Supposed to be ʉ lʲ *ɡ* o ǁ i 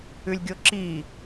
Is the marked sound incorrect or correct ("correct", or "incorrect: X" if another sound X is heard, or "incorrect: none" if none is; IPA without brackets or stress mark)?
incorrect: ɡʲ